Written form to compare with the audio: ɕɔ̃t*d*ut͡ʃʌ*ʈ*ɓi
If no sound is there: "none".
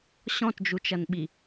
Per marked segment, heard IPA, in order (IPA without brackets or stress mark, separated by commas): d͡ʒ, n